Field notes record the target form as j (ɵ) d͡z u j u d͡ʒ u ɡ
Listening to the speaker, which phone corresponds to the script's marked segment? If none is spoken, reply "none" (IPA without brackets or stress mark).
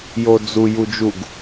o